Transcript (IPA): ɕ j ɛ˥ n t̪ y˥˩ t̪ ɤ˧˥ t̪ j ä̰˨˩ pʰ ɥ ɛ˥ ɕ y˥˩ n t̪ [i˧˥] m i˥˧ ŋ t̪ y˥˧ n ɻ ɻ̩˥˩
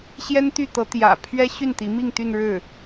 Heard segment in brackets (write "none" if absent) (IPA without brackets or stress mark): i˧˥